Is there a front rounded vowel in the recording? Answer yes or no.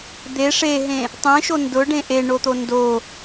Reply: no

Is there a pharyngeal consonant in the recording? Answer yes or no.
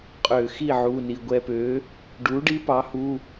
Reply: yes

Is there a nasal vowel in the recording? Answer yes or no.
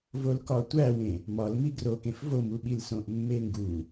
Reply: yes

